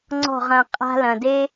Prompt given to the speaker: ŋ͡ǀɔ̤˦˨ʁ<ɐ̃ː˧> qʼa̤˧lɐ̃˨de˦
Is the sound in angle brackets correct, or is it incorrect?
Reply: correct